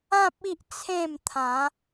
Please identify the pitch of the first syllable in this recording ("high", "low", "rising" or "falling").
low